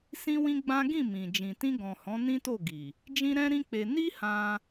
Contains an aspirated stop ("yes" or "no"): no